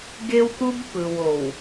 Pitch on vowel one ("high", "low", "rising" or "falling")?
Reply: high